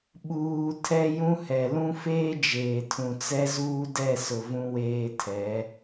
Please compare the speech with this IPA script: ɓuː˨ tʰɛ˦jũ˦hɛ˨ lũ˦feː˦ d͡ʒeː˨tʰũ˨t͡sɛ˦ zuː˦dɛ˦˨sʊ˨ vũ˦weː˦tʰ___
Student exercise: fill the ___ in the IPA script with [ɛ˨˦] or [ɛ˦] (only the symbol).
ɛ˨˦